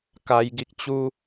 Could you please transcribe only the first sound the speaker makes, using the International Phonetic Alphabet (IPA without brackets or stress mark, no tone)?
k